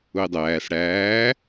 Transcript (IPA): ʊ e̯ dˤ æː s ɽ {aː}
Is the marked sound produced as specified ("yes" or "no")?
no